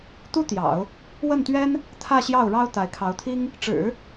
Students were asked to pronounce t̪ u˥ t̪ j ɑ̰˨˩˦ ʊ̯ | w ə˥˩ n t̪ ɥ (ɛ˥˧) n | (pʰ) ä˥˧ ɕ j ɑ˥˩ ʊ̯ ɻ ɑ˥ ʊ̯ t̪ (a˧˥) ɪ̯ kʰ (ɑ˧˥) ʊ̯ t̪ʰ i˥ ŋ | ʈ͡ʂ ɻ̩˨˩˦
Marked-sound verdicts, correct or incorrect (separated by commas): incorrect, incorrect, correct, correct